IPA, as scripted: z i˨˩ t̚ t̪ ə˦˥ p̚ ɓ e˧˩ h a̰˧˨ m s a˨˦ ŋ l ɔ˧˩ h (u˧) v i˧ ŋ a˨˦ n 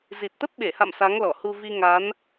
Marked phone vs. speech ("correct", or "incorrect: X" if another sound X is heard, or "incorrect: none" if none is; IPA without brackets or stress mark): correct